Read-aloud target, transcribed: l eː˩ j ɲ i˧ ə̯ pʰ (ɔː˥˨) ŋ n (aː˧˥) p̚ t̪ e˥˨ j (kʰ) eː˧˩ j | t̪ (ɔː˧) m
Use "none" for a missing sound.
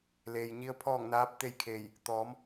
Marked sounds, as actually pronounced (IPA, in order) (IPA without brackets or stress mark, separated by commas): ɔː˥˨, aː˧˥, kʰ, ɔː˩˧